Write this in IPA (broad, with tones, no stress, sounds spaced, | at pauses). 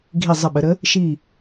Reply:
ɡʱ i˧˩ zˤ ə˧˩ ɓ ə˩˧ ɾ ə˨˥ | ʃ i˧˩